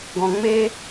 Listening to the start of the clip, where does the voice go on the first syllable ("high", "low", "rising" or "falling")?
low